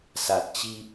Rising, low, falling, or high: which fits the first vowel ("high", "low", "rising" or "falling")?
low